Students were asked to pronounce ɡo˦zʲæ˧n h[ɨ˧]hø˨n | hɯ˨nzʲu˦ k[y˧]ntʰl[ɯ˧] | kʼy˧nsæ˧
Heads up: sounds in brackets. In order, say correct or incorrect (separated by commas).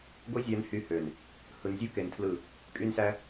incorrect, incorrect, incorrect